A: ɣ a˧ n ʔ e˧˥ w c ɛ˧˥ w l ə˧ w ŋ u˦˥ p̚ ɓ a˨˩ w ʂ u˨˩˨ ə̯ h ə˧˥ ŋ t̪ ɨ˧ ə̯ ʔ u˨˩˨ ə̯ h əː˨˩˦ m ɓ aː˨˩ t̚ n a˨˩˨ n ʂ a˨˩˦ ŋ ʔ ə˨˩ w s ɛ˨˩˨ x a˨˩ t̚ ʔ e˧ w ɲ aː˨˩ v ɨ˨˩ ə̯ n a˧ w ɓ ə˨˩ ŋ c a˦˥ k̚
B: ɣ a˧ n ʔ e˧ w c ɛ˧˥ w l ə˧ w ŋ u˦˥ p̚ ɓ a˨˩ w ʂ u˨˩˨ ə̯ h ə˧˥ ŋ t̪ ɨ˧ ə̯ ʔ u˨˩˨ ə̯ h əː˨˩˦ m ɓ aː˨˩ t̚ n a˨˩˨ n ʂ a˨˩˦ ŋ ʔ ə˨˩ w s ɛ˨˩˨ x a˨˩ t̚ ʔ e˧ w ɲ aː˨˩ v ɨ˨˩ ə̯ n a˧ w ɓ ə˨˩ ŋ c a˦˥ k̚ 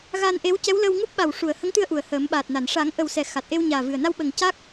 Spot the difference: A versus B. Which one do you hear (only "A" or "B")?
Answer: A